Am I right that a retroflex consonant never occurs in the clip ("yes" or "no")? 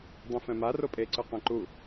yes